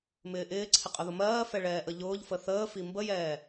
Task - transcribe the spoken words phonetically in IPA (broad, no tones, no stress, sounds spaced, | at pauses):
m ɪː ʔ ɪː ǀʰ ɪ qʼ ʊ ð ʊ m ɜː f ɛ ɭ ɛː ʔ ə ʎ ʊː ʎ f ə θ əː f i m b ə j ɛː